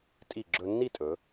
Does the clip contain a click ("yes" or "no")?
yes